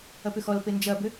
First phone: ɐ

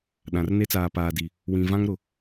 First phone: ɗ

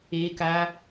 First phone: e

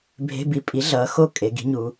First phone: bʱ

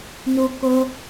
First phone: n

